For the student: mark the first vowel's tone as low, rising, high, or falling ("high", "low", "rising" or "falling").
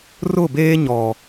falling